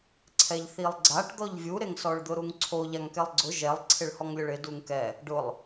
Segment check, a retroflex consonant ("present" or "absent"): present